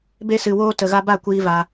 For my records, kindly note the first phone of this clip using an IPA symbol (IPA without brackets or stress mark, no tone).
b